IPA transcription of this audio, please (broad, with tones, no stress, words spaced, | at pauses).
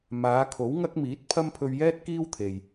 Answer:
maː˨˧kʰo˨˥wŋɐ˥k̚miː˨˥t̚ pʰɐ˥mpʰɵ˧ɥjɛː˥t̚kiː˥w t̪ʰe˨j